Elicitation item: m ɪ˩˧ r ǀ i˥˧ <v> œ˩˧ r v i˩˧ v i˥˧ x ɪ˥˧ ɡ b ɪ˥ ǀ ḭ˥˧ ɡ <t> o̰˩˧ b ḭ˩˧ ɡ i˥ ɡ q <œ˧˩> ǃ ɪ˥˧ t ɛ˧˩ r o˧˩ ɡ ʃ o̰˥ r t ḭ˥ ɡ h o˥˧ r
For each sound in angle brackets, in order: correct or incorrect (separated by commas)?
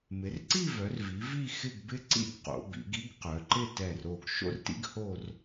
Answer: correct, incorrect, incorrect